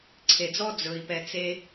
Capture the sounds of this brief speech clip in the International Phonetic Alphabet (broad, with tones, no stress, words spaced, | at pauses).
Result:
ǀʰe˩d͡zɔ˥ d͡zɵ˩i̯pɛ˨ t͡se˦